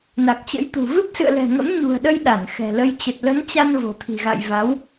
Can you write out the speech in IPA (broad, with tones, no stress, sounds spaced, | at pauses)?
n a˨˩ k̚ t͡ɕ ə̰˧˥ j t̪ ṳ˨˩ v ɨ˦˥ p̚ s ɨ̰˧˨ ə̯ l ɛ̤˨˩ ŋ ə̰˧˥ m ɲ ṳ˨˩ ə̯ ɗ ə˧ j ɗ a˧˩ n x ɛ̤˨˩ l ə˧ j t͡ɕ ə˨˩ t̚ l ə˨˦ n t͡ɕ a˧ n v o̤˨˩ t̪ʰ i̤˨˩ ɣ a̰˧˨ j v a˨˦ w